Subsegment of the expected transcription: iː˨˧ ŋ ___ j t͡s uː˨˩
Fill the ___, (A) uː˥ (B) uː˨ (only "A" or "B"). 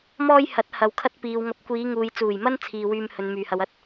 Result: B